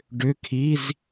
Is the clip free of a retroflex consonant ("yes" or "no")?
no